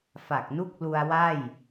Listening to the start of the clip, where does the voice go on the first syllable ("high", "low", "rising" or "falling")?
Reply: low